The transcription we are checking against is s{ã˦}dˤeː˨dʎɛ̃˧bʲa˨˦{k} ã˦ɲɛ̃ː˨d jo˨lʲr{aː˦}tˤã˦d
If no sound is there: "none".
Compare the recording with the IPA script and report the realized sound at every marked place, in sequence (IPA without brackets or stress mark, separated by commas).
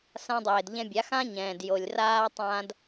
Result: ã˧, x, aː˦